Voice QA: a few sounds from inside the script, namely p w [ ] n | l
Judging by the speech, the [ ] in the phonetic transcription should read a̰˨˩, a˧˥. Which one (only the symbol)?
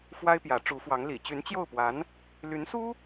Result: a˧˥